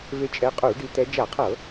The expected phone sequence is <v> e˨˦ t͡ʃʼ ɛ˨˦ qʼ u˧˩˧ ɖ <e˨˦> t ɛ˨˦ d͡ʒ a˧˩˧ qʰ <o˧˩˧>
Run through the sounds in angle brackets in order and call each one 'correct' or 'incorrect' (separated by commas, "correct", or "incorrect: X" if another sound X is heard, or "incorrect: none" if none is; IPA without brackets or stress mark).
correct, incorrect: i˨˦, incorrect: ɤ˧˩˧